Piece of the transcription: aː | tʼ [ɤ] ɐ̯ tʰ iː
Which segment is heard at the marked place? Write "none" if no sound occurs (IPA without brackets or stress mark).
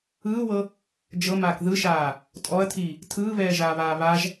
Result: ɔ